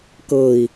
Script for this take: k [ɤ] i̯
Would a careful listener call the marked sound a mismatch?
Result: no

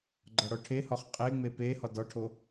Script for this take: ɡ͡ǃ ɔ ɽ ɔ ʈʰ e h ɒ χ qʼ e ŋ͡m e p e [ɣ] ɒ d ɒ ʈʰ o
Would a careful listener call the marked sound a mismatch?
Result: yes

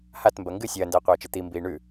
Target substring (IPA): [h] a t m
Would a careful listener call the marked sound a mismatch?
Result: no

